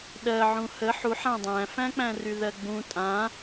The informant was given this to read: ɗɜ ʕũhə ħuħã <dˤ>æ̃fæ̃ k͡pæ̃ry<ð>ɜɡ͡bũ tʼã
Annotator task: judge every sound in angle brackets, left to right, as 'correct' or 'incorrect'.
correct, correct

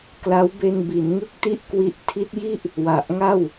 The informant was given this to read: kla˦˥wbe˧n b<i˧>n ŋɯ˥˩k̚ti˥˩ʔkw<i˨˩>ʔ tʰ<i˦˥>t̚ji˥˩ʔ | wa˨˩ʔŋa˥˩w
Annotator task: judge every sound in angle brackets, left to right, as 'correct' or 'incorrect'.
incorrect: i˩˦, incorrect: i˦˥, correct

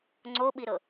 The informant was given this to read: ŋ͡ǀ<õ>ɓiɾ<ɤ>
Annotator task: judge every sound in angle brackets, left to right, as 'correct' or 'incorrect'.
incorrect: o, correct

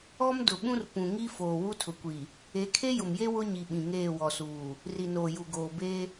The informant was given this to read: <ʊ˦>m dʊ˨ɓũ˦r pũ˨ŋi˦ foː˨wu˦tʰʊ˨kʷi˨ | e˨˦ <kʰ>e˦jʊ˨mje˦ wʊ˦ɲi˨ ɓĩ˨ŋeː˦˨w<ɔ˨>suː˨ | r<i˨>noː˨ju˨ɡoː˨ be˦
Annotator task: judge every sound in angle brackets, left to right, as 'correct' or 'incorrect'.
incorrect: ɔ˦, correct, correct, correct

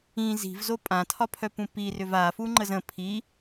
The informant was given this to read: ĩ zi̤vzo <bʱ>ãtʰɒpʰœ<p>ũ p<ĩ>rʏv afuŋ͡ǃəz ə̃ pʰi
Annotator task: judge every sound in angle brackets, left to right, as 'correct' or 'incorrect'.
incorrect: pʼ, correct, incorrect: i

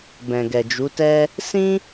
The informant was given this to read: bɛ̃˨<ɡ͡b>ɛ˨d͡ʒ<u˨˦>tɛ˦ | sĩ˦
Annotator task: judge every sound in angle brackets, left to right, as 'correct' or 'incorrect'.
incorrect: ɡ, correct

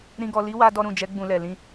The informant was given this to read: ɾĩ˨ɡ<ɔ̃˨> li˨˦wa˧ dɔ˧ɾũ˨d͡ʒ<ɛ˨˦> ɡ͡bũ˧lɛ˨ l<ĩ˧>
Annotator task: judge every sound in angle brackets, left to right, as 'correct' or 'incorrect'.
incorrect: ɔ˨, correct, correct

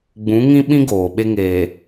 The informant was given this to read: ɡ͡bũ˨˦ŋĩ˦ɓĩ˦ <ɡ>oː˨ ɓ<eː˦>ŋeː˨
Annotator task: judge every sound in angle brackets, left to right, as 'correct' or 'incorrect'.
correct, incorrect: e˦

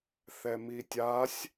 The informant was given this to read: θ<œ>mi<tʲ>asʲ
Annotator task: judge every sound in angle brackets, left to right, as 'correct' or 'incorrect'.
incorrect: ɛ, correct

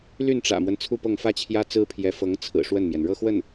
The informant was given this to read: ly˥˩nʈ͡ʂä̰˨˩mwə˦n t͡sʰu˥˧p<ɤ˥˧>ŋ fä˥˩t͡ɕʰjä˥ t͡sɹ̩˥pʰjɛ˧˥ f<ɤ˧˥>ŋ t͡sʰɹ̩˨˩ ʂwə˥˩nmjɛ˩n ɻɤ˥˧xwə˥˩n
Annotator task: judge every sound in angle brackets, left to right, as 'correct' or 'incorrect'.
correct, correct

